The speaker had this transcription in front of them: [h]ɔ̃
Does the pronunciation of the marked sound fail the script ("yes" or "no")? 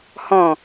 no